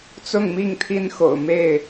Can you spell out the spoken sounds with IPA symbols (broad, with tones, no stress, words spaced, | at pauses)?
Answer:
t͡sʊ˥˨ŋmi˥˨ŋt̪ʰi˦nxo̰˨˩ʊ̯ me˥˨ɪ̯